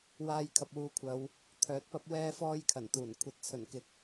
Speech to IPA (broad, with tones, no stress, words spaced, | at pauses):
waː˧jkʰɐ˨p̚wuː˨˧kʷʰɐ˨˧w | t̪ʰœː˨˥t̚pɐ˥p̚ wɛː˥fɔː˥jkʰɐ˨˩nt̪uː˨˩n kʷʰɐ˧t̚t͡sʰɵ˨˩nkɪ˨k̚